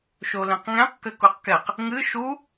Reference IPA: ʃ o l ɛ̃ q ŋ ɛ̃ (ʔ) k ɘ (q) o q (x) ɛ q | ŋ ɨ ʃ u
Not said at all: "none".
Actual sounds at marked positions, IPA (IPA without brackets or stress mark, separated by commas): q, k, k